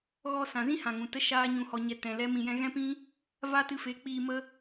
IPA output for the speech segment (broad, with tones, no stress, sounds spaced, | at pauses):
ɣ ɔ˧ s ã˨ z ĩ˦ h ã˨ ŋ ũ˨ t ə˦ ʃ aː˦ ɲ ũ˧ h ɔ˧ ɲ ɛ˧ t ɛ̃˨ l ɛ˦ m ĩ˧ j ɛ̃˦ ɣ ɛ̃˦ p ĩ˦ | v a˦ t ɨ˧ f e˨˦ k͡p iː˧ m ə˦